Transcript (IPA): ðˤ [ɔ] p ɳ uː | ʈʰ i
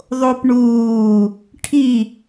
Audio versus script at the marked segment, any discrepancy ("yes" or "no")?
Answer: yes